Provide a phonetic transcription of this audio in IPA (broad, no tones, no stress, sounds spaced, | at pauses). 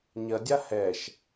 ɲ ɐ dʲ a h ɛ ʃ